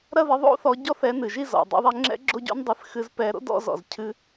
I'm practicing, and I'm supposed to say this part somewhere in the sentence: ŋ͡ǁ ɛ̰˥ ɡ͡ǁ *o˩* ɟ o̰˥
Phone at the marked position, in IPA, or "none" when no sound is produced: o˥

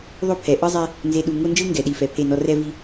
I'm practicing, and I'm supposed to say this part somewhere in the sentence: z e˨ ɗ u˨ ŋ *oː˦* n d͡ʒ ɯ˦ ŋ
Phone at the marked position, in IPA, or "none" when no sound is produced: o˦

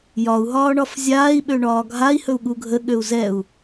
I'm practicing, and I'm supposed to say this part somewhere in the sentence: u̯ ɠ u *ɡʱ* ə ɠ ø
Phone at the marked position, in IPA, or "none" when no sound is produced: ɡʱ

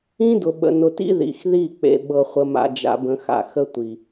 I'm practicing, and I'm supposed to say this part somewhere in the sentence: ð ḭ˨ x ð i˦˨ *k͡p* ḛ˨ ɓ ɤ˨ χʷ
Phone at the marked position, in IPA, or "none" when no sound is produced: k͡p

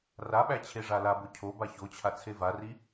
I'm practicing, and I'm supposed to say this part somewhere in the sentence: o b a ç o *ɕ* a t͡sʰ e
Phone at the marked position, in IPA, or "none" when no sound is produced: t͡ɕʰ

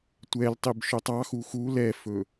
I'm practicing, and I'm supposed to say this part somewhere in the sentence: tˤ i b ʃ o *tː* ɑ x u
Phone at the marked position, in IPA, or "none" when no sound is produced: tˤ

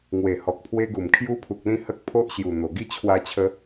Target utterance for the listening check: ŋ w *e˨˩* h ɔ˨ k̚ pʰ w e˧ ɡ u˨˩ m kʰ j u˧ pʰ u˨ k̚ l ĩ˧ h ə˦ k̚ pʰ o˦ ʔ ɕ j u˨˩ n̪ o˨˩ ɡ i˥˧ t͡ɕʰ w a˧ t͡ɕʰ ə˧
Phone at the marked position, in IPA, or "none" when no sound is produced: e˨˩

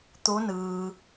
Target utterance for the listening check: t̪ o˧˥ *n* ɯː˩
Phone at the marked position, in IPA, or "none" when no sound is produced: n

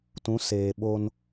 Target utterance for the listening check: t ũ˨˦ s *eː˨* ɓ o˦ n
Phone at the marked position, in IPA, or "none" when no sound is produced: eː˨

